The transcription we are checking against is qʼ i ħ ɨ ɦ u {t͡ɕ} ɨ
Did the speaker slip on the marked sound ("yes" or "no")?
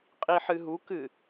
yes